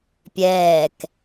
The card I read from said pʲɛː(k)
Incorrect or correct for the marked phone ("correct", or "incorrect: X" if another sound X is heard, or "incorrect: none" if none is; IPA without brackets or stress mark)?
correct